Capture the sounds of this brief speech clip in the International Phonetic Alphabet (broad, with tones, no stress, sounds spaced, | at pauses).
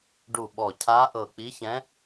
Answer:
ɖ u˧˩ ɓ ɔ˧˩ cʰ a˧˥ ʔ ɤ˧˩ k͡p i˧˥ ç ɛ̃˧˥